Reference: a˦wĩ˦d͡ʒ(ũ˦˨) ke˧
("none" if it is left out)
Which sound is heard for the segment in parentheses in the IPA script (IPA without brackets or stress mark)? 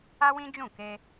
ũ˦˨